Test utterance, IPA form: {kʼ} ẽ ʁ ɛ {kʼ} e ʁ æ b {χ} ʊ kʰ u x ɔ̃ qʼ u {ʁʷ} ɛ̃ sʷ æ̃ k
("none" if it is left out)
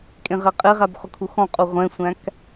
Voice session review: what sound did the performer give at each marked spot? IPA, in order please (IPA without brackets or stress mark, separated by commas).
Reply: kʼ, qʼ, χ, ʁʷ